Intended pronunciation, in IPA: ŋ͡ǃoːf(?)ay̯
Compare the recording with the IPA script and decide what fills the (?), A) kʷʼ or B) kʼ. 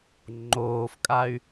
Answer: B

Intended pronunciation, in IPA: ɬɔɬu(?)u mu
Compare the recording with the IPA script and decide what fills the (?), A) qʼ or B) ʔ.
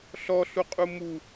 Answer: A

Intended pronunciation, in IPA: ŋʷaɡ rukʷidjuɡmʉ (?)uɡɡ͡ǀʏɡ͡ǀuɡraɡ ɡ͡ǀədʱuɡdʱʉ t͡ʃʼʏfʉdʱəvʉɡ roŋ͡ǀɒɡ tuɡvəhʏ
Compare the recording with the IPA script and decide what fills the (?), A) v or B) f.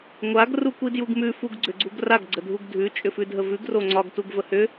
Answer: B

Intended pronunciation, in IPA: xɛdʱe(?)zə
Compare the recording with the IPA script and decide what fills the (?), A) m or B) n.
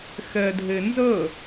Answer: B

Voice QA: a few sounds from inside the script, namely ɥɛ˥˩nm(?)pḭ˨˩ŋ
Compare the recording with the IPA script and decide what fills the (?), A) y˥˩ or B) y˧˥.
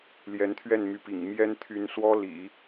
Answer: B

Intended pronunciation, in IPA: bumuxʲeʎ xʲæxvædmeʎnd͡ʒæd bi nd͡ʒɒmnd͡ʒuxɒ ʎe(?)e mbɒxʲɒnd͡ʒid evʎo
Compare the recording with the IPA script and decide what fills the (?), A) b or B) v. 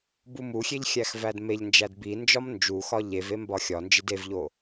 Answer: B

